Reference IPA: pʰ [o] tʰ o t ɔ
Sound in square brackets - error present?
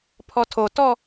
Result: yes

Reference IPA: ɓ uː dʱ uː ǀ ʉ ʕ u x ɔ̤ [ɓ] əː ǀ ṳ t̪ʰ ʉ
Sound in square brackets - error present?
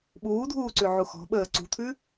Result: no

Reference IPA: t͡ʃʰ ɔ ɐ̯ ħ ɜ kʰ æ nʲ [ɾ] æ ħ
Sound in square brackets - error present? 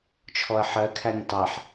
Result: yes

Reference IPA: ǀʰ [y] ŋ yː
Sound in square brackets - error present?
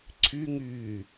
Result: no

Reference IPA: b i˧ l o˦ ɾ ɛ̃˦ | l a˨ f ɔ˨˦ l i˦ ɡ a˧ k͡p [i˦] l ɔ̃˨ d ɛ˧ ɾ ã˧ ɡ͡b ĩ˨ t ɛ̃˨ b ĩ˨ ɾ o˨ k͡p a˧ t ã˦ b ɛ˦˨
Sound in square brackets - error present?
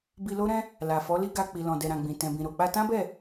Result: yes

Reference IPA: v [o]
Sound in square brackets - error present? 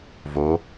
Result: no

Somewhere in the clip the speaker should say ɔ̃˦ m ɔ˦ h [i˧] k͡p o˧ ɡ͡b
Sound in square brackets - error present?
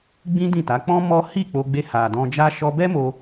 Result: yes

